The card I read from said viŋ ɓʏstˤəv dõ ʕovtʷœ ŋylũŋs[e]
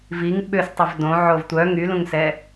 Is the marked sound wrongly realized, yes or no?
yes